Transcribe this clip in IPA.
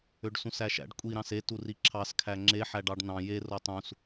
ø ɖ s ũ s æ ʃ æ̰ ɖ kʷʼ i ɾ ɑ̃ s e t u r i ǁʰ ɑ s kʰ æ ŋ͡ǁ e ħ æ ɖ ɑ ɖ n ɑ̃ j e r o tˤ ũ s

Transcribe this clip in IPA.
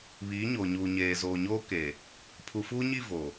β iː˨˦ ɲ oː˨ ɲ uː˨ ɲ eː˨ z oː˨ ɲ oː˦ k eː˨ | pʰ u˨ f uː˦ ɲ i˦˨ v oː˨

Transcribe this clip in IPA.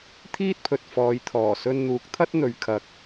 t̪ʰ iː˥ t̚ pʰ ɵ˨ t̚ f ɔː˨˧ j t̪ʰ ɔː˨˩ s ɵ˧ n n̪ uː˨˥ k̚ t̪ʰ ɐ˥ t̚ n̪ ɵ˨ ɥ kʰ ɐ˨ k̚

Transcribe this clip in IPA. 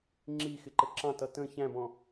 ŋ͡ǁ i x ɪ ǃ ə ǁ ɑ̃ t ʌ t ə̃ ç æ̃ b ɔ̃

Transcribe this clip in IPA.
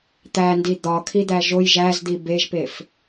t̪ æ n d i d̪ ɒ kʰ i d̪ æ ʒ o j ʒ æ z d̪ i b e ʒ p e f

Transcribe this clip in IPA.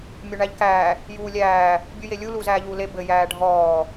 mʲ ɵ ɳ æ ʎ k æː | j uː lʲ æː | bʲ u j e lʲ u l u z æː ʎ uː l e b ɘ j æː ɖʱ ɔː

